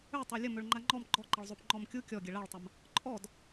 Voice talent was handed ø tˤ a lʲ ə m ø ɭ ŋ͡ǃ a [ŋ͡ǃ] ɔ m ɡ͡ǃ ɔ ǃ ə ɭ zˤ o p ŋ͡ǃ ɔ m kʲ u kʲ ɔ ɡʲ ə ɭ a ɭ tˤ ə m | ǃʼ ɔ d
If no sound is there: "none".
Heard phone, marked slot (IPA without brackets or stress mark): ŋ͡ǃ